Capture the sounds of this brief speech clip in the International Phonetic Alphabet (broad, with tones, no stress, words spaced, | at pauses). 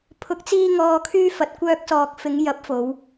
pʰʊ˨˥k̚t͡siː˧ŋɔː˨kʰyː˧ fɐ˨t̚kʷœː˧k̚sɔː˨k̚ fɪ˨˧ŋjɐ˨˥p̚fo˨˧w